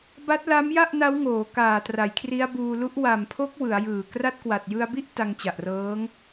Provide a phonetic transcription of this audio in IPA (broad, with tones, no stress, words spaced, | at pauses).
ba˦˥t̚la˦˥mja˥˩ʔ na˦˥wŋoː˩˦ kaː˨˩tra˩˦j kʰri˦˥a̯buː˧ lu˦˥ʔ wa˨˩mpʰo˦˥k̚ wɯ˩˦a̯jɯː˨˩ kra˦˥t̚kwa˨˩t̚jɯ˧a̯bi˥˩ʔ ta˧ŋt͡ɕa˨˩ʔrɤː˦˥ŋ